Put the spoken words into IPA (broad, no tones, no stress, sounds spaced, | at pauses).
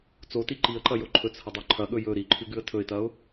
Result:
t͡s o t i ǃ i ə̯ ǃ ɐ j o ǃʰ ɵ t͡s h ɐ dˤ ʉ ǃʰ ɐ ɠ ɵ j ɵ ɾ i ǃʰ ʉ ɡ ʉ ə̯ tʰ ɵ ɪ̯ t ɐ ʊ̯